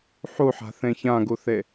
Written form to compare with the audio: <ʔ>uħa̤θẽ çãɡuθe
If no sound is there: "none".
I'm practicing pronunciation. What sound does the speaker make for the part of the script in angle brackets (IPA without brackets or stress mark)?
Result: ħ